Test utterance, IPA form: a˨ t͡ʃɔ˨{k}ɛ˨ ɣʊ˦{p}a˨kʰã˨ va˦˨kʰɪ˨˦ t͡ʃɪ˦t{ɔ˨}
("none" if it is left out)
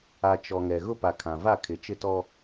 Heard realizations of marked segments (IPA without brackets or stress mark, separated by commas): ŋ, p, ɔ˦